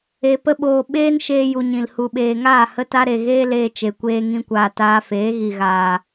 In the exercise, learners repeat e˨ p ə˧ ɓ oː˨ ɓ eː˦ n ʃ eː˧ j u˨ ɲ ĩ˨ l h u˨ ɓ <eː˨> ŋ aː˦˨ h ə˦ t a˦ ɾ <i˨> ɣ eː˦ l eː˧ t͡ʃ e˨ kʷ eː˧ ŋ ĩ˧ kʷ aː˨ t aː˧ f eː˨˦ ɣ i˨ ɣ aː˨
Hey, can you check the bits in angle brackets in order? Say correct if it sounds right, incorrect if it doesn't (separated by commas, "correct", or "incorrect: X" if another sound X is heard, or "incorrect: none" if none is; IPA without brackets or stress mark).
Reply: correct, incorrect: e˨